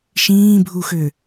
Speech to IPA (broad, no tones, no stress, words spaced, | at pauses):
ʃĩːbʱuxø